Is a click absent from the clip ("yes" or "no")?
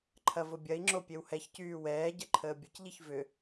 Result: no